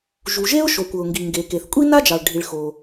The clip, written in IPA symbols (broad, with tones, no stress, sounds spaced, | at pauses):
ʒ u˩ ʒ e˥ ʊ̯ ʃ o˩ kʷ ɤ˩ ʊ̯ ŋ ɡ i˩ ŋ ɡ e˩ k e˩ θ kʷʼ i˥ n a˥ d͡ʒ ɑ˩ ɭ ɖʱ i˩ ɭ x o˩